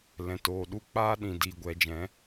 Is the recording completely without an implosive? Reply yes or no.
no